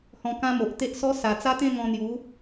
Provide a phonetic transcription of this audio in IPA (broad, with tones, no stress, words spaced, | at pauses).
hɔ̃˧kã˦mo˨ʔ t̪e˦ʔsɔ˦ sa˨˩t͡sa˦t̪ẽ˥˧ ŋɔ̃˧n̪ju˨˦